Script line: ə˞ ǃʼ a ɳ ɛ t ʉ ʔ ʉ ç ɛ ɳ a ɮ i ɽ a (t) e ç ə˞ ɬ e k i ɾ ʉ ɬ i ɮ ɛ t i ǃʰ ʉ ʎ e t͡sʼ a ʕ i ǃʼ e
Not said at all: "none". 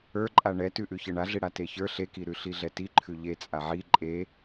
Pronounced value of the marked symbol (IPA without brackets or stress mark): t